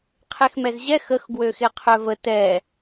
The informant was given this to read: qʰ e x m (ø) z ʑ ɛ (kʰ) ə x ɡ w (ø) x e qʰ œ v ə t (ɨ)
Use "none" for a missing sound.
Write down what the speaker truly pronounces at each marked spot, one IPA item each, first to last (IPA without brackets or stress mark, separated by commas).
ɛ, x, ø, ɛ